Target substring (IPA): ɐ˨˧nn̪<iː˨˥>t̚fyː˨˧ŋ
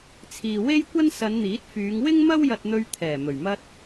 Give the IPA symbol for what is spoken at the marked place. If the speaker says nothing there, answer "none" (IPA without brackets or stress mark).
iː˨˥